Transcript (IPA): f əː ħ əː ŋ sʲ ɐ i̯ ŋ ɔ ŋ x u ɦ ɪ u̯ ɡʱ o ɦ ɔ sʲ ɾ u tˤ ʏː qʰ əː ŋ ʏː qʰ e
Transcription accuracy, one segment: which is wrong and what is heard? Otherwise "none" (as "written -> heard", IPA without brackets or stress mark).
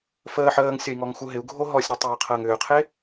none